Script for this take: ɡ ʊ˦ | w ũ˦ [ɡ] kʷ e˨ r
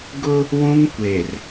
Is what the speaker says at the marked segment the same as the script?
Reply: no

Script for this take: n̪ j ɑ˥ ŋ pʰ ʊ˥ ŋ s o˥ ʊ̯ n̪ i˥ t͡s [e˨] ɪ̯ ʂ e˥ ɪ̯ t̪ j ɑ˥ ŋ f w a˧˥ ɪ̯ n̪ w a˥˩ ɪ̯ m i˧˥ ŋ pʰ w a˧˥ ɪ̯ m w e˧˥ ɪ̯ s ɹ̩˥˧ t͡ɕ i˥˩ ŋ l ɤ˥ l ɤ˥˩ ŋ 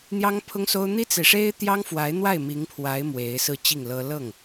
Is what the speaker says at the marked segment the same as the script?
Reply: yes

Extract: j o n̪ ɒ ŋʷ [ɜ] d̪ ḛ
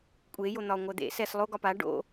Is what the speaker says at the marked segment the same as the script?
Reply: yes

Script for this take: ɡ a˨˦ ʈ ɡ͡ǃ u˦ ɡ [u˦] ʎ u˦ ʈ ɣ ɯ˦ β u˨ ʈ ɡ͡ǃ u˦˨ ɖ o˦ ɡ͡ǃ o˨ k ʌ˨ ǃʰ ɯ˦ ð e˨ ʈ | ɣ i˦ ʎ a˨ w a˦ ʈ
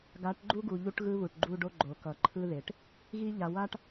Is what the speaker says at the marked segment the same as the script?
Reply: no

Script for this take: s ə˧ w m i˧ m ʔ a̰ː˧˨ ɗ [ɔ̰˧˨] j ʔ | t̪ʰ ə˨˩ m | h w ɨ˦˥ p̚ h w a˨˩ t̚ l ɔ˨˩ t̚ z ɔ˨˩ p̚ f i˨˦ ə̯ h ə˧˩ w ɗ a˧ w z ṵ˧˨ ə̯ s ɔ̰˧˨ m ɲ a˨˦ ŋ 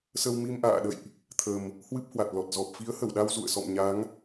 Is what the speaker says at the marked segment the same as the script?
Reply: no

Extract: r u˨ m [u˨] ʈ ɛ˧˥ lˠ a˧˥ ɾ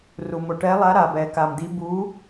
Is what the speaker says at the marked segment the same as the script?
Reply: no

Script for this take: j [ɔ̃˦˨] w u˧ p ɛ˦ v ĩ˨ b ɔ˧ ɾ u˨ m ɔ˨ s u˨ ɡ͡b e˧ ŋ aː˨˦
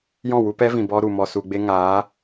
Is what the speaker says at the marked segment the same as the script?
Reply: yes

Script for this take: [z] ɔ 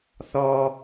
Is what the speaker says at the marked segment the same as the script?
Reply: no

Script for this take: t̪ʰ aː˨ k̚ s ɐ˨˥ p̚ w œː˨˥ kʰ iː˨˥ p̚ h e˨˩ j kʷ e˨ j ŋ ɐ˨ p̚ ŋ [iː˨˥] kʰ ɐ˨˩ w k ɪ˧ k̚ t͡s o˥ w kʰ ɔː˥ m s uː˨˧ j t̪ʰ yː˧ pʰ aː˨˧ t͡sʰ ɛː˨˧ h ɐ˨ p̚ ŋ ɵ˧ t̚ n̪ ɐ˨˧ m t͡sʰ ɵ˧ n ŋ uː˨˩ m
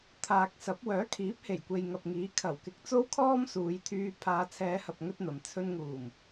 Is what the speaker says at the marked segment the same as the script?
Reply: yes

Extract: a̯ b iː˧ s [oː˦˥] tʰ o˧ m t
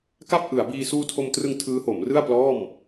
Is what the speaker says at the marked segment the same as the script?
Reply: no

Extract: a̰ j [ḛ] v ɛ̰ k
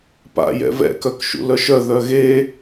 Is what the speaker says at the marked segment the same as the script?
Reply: no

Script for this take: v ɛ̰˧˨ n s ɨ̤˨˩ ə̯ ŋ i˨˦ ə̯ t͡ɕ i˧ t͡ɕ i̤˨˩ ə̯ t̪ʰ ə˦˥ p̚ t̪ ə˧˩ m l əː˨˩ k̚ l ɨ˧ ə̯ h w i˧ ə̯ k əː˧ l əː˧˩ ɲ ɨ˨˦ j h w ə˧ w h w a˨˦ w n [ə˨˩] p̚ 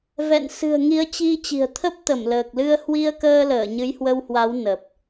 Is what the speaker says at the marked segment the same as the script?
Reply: yes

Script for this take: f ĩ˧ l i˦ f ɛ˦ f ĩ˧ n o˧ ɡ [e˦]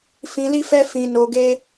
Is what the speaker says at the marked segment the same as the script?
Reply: yes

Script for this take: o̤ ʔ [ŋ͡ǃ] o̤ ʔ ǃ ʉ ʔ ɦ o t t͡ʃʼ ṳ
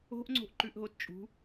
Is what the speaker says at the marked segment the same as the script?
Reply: no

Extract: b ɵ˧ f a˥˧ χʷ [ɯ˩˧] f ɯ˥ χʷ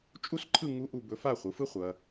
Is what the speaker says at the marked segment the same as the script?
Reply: yes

